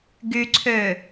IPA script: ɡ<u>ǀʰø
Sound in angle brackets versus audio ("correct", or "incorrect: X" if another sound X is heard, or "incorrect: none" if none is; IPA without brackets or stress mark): incorrect: y